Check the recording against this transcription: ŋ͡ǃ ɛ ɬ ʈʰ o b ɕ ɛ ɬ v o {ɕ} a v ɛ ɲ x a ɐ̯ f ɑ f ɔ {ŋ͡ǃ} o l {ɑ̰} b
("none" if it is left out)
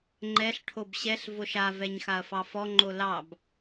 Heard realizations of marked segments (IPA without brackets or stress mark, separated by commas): ʃ, ŋ͡ǃ, ɑ